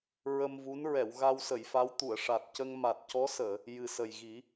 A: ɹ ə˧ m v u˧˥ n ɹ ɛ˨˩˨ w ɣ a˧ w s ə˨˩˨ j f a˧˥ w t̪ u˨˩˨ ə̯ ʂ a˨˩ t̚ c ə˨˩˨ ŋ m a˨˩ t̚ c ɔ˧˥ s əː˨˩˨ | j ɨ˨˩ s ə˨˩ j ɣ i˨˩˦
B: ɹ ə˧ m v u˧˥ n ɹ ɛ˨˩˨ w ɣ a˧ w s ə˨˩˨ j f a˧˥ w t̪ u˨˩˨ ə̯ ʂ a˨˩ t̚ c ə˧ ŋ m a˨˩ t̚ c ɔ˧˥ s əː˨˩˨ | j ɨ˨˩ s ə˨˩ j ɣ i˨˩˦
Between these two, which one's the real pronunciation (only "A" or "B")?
B